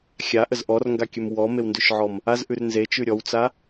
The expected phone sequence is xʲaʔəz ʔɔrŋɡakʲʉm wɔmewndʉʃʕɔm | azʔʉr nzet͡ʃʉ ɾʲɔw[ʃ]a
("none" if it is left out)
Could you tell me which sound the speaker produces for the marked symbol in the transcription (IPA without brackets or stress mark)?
t͡s